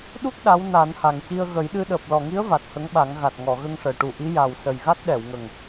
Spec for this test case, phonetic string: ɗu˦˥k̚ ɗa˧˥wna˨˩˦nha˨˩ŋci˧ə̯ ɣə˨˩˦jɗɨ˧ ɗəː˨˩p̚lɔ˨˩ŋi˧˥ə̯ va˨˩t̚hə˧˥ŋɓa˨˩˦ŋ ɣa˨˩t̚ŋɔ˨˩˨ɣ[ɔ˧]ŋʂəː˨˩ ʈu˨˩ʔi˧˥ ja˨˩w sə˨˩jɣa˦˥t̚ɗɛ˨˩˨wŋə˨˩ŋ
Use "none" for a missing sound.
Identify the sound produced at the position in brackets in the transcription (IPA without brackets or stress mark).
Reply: ə˧